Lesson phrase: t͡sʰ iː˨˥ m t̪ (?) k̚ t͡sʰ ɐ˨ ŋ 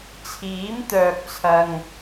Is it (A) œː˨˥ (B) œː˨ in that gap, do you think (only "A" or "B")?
B